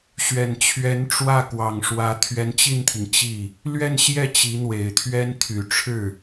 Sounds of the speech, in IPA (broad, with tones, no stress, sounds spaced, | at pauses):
ɕ ɥ ɛ˨˩ n t͡ɕʰ ɥ ɛ˧˥ n ʈ͡ʂ w ä˥˩ k w ɑ˨˩ ŋ ʂ w ä˧˥ t̪ʰ ɥ ɛ˧˥ n t͡ɕ i˥˩ n t̪ʰ i˩ ŋ t͡ɕ i˥˩ | l ɥ ɛ˥˧ n ɕ j ɛ˥˩ t͡ɕ i˧˥ n̪ w e˨˩ ɪ̯ t̪ʰ ɥ ɛ˥ n t̪ʰ y˨˩ ʈ͡ʂʰ ɻ̩˥˩